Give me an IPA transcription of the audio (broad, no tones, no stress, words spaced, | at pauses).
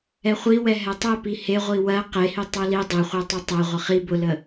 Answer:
ɛχʷi wɛɦɛtˤɜ piheʁʷi wɜ qehi tˤɜli dˤeχʷi tˤetˤɛ ʁʷəχi bʊlə